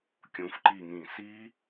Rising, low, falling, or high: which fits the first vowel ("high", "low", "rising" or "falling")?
rising